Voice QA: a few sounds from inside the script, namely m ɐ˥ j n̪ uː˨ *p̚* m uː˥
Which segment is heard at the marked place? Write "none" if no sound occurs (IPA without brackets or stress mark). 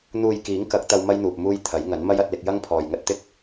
p̚